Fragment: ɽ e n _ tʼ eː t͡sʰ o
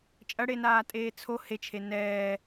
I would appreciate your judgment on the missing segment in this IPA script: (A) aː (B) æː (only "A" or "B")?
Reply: A